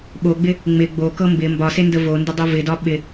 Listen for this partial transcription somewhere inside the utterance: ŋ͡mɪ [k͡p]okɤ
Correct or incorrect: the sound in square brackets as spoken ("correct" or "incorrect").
incorrect